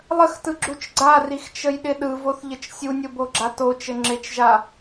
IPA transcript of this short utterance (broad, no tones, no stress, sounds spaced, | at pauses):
lˠ ə x t ɯ ɡ͡ǁ u t͡ʃ ɡ͡ǀ a r i x t͡ʃ ə j ɗ ɪ ɗ ɯ v o θ ʎ ə t͡ʃ sʲ u nʲ o b o ɡ͡ǁ a t o t͡ʃ ɘ ŋ͡ǁ ɪ t͡ʃ ʒ a